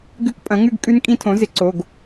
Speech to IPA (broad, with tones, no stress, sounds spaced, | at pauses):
ɡ ʉ˦˥ k pʼ ɐ̃˩˥ ŋ ʉ˥˧ ɡ kʼ ʉ˦˥ n kʼ ĩ˦˥ tʰ õ˩˥ z ɪ˩˥ ǀ o˩˧˩ ɡ